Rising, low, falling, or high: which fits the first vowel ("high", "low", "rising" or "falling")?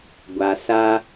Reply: low